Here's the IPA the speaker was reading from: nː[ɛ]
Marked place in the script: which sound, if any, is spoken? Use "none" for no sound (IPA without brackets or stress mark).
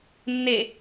e